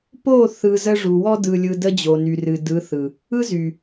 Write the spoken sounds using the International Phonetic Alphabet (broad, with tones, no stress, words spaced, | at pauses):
po˦˨ θɯ˧zə˦ ʐu˨wɔ˦ dɯ˧lʲɯ˧ də˦d͡ʑo˨ny˨ rɨ˨dɯ˨˦θɯ˨ | ɯ˦zy˨